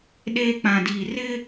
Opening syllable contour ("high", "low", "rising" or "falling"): high